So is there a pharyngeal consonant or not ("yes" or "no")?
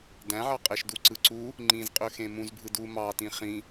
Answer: yes